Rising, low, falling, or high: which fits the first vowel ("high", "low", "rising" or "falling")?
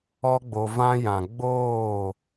high